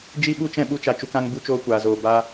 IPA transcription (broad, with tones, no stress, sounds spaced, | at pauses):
d͡ʒ i˦ ɓ u˦ t͡ʃ ɛ̃˦ ɓ u˦ t͡ʃ a˧ t͡ʃ u˧ k ã˧ ŋ b u˧ t͡ʃ oː˧ kʷ aː˨ z oː˨ b aː˧